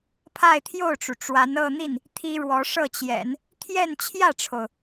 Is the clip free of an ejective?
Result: yes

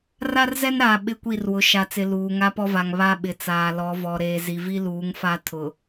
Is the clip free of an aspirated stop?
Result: no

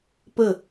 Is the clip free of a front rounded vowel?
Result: yes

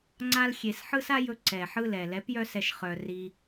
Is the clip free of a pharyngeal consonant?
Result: no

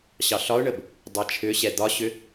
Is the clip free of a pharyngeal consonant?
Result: yes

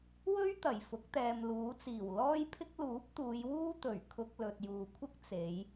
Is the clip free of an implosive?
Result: yes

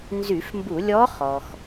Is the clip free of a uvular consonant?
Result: no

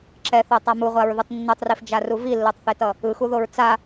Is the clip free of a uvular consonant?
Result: no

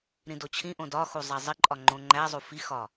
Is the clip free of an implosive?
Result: yes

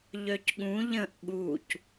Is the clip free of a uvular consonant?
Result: yes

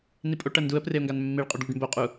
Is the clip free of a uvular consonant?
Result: no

